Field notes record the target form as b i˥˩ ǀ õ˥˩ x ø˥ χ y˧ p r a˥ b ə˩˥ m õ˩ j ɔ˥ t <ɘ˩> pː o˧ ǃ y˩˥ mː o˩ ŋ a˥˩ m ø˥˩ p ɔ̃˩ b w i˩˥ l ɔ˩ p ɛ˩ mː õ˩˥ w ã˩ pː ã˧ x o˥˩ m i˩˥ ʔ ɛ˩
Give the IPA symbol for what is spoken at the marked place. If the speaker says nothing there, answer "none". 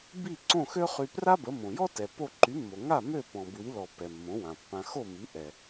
ɛ˩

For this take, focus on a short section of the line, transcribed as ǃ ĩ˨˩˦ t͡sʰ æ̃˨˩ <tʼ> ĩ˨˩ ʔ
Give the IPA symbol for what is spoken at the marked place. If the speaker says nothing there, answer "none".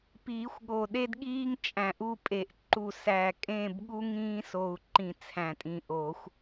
tʼ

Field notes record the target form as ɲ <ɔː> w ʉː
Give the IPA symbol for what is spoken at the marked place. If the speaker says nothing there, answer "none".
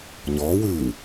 ɔː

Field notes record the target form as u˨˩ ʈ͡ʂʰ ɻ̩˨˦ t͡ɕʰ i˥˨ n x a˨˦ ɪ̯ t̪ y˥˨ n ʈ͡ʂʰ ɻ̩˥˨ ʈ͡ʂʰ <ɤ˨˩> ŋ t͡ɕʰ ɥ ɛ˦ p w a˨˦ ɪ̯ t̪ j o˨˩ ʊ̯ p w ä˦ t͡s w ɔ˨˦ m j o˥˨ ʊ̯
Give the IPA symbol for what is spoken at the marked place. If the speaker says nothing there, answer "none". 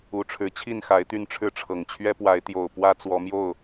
ɤ˨˩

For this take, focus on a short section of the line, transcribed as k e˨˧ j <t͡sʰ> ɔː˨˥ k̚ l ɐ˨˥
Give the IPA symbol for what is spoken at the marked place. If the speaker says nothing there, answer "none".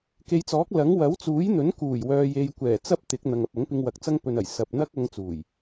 t͡s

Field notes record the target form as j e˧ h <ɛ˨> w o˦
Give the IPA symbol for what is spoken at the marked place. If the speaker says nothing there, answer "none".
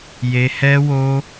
ɛ˦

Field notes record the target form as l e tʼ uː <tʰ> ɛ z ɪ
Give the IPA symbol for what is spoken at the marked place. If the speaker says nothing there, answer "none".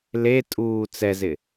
t͡s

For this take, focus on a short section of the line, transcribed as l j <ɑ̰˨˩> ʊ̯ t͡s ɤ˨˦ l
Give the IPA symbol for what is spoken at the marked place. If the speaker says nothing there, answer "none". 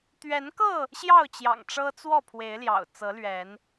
ɑ̰˨˩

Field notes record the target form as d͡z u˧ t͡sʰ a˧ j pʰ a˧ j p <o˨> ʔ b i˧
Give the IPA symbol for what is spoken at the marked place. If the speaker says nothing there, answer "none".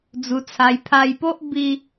o˦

